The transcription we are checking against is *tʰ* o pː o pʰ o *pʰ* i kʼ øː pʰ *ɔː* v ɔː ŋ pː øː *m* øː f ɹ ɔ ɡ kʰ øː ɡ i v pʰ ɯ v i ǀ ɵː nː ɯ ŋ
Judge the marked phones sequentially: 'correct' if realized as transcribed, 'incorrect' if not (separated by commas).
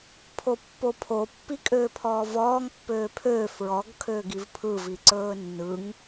incorrect, incorrect, correct, incorrect